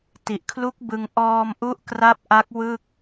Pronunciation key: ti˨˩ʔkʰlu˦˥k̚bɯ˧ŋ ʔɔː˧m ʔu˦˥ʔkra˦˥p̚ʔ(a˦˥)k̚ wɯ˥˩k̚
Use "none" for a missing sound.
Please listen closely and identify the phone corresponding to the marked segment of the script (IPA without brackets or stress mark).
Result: a˦˥